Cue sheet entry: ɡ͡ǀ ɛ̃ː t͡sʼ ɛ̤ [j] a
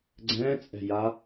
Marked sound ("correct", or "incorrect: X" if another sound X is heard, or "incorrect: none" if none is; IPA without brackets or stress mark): correct